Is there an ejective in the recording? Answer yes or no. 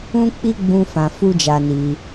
no